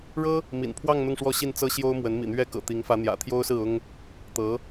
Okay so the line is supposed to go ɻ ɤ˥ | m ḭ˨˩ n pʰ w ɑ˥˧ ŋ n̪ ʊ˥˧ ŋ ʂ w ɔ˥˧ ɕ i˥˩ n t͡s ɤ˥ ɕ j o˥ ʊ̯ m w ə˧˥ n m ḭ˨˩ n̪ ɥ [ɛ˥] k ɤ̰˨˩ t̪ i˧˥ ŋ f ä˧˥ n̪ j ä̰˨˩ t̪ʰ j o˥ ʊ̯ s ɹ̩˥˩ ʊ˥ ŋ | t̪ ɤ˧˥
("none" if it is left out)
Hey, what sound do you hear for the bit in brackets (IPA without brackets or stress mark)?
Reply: ɛ˥